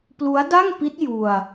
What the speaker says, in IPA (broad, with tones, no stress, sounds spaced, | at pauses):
p l u˦˥ a̯ d a˥˩ ŋ p i˦˥ t̚ j u˧ a̯